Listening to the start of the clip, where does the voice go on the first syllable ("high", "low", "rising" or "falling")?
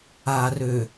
low